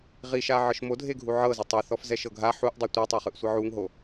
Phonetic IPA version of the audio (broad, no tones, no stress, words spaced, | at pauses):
ʁiʃa ʕɤʃmodʱeɡʱu ʕɤ zotˤɛθɔf zɛʃɤɡʱa ħuʔdˤɤ tʷitˤɛχɯʔ sʷɤʕuŋɦo